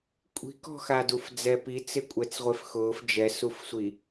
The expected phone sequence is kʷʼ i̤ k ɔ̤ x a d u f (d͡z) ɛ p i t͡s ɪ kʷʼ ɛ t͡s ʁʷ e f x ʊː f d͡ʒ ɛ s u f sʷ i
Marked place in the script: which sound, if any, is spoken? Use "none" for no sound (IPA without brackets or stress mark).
d͡z